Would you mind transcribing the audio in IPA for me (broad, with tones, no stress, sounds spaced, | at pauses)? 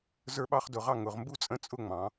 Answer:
z ə˞˥ ɓ ɑ˥ χ d ʊ˧ ʁ ɑ˥˧ ŋ ʊ˩˧ ʁ m b u˥ t͡sʼ ə̃˥˧ t͡sʼ ʊ˥˧ ŋ͡m ɑ̃˩˧